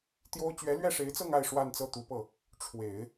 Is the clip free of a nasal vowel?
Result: yes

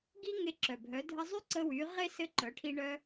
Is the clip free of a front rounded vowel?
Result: no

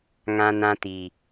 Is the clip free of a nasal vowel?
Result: no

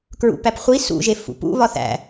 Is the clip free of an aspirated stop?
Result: yes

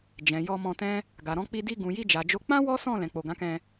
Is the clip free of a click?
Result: yes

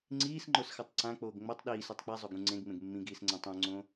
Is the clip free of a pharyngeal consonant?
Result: yes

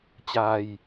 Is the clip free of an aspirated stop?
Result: yes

